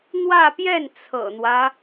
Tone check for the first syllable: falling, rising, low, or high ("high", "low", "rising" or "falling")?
falling